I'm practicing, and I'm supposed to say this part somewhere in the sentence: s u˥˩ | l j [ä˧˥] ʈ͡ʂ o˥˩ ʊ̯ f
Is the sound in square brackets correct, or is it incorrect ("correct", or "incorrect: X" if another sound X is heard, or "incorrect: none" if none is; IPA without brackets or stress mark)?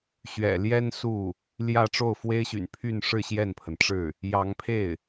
incorrect: ä˥˧